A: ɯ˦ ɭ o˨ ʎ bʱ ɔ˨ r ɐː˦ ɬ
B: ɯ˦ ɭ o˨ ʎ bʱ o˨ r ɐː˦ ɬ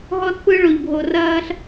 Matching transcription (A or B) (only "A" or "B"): B